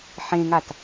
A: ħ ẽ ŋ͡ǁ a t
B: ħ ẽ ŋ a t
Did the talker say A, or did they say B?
B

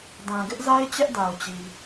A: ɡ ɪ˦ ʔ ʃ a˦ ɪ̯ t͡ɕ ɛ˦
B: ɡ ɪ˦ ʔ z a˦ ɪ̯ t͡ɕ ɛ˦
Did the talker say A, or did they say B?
B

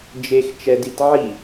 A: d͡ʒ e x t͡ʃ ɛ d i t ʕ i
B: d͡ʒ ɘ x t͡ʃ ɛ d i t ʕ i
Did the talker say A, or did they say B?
A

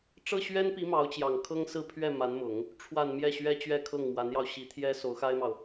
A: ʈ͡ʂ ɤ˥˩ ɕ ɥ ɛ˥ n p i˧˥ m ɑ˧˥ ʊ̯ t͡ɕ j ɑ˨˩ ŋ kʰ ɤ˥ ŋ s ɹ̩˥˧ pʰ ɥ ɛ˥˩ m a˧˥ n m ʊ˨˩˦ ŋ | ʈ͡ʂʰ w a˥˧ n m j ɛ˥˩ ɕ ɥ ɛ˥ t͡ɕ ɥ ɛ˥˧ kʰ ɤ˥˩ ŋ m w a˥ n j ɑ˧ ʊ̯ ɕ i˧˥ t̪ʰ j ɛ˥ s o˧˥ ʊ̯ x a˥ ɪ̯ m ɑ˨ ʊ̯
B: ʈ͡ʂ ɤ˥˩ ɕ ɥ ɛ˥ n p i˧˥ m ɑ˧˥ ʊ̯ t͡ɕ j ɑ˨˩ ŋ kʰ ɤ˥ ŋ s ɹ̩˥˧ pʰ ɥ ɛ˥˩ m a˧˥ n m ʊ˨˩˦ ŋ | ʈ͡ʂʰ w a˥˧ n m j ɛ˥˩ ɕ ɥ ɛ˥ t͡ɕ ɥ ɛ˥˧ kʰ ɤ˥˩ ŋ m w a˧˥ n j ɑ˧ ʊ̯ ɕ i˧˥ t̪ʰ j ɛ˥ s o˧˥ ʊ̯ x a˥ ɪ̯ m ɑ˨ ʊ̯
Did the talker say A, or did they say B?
B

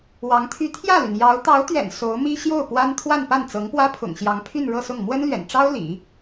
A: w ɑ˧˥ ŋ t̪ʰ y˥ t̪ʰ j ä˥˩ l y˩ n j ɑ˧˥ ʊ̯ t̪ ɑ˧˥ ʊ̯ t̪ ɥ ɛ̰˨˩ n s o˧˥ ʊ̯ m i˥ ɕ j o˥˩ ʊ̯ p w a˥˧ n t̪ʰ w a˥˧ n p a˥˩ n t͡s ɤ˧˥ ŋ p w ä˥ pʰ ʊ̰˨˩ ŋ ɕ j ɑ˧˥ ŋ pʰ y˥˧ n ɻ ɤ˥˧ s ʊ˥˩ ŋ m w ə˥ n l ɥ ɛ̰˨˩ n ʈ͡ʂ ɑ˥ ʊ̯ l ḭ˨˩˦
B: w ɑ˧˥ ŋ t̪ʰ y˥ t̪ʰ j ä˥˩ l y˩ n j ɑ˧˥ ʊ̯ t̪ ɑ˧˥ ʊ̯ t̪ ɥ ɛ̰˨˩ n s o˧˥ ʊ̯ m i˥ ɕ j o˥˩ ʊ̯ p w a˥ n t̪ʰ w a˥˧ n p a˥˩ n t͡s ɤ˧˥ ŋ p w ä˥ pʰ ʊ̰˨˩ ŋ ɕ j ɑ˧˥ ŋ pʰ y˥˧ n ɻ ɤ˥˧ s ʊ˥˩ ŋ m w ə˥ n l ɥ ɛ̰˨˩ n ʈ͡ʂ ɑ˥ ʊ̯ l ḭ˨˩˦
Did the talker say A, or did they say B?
B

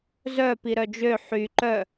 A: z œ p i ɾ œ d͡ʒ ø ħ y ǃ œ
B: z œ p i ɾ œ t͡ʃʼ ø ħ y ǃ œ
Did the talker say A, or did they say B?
A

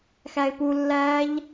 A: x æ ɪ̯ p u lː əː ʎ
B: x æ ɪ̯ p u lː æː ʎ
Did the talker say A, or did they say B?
B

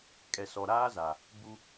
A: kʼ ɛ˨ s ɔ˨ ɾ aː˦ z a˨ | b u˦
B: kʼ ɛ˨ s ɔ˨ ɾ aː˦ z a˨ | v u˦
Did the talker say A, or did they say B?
A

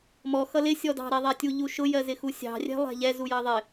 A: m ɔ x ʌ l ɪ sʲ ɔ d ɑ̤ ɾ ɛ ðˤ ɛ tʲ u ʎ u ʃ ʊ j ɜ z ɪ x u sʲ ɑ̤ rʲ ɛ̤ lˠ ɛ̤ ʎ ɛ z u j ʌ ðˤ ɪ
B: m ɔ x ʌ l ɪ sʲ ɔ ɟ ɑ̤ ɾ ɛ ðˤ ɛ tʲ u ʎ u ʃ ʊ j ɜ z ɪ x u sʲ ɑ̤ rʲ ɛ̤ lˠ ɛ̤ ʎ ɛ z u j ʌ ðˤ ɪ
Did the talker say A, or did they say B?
A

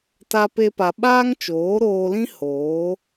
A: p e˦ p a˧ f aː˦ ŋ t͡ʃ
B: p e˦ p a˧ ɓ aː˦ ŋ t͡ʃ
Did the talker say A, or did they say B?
B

